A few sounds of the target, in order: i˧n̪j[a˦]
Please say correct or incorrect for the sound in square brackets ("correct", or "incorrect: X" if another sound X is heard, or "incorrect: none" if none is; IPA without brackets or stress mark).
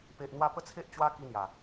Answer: incorrect: a˨˩